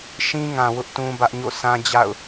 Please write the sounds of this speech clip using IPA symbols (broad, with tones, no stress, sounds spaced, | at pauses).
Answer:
ʃ ĩ˦ ŋ ã˨ w ʊ˦ ʔ t ũ˦ b ä˦ ʔ ɲ o̰˦˨ sʰ ã˦ d͡ʑ a̰˦˨ ʊ̯